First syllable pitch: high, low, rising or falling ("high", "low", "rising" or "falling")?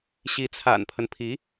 rising